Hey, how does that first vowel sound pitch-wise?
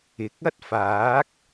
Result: rising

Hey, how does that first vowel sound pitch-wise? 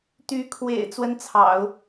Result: rising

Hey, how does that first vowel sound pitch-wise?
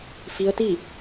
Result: rising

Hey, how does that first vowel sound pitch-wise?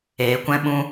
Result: low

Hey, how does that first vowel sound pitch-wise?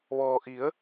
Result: low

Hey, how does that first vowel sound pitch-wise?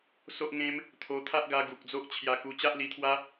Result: high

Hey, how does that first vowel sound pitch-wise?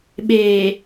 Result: low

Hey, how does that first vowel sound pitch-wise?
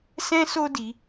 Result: high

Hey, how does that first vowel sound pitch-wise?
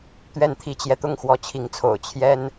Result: falling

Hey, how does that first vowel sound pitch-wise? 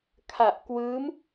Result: low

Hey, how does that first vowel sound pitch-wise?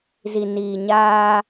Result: low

